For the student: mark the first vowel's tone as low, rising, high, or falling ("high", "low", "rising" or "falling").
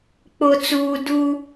low